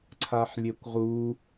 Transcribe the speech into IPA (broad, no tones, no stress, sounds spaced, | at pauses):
ǀʰ a ħ lʲ e kʷ ʁ u